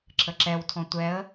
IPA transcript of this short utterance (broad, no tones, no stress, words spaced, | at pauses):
ǁʰəǁɛwtʰɔ̃ tʷɛə̯